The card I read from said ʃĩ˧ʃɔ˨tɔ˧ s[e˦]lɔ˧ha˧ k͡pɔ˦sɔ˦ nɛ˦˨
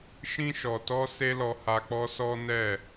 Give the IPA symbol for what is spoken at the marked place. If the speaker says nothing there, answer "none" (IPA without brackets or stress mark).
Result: e˦